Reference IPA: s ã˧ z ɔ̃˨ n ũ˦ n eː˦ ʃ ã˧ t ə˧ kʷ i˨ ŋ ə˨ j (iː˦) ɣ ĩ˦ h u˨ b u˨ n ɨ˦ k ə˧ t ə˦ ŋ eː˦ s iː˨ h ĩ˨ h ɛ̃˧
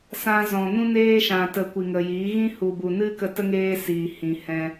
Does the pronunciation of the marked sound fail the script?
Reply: yes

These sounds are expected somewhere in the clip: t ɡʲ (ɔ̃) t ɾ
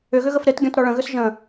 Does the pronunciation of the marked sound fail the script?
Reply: no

